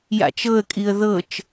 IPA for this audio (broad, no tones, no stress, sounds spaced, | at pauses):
j a̰ t͡ʃ ɤ ə̯ kʼ i ə̯ ð ɤ t͡ʃ